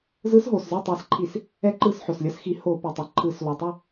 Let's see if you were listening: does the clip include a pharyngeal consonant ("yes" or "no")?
yes